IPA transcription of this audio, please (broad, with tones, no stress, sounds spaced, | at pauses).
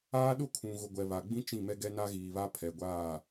aː˦ ɗ ʊ˦ kʰ ũ˨ ɣ ʊ˨ ɡʷ ɛ˨ β a˨ ɡ͡b ĩ˦ t͡ʃ ĩ˦˨ m ɛ˦ ɡ ɛ˦ n a˦ ɣ iː˨ β a˦ pʰ ɛ˨ ɡʷ aː˦˨